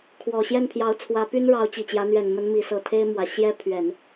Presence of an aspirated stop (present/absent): present